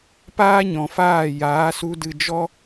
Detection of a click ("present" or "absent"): absent